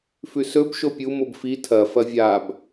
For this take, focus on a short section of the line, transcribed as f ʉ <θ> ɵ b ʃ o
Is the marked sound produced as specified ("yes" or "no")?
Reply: no